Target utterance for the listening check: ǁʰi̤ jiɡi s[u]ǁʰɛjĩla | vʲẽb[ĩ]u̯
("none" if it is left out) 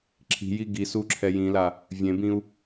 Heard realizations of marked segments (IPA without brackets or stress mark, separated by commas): u, ĩ